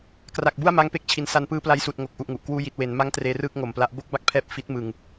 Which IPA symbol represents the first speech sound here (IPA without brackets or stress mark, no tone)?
k